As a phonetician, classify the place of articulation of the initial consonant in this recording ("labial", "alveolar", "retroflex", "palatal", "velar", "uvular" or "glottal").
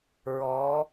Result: alveolar